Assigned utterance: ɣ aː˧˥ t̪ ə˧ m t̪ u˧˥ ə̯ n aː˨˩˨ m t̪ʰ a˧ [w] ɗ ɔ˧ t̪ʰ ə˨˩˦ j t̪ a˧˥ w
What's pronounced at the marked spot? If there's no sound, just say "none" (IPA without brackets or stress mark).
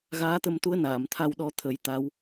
w